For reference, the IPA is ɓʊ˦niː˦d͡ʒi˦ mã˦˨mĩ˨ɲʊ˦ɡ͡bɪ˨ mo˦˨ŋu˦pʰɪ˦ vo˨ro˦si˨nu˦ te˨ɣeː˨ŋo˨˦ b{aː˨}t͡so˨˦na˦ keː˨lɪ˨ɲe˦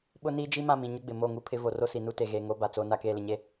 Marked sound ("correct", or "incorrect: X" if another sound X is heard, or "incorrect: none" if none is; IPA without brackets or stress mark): incorrect: a˨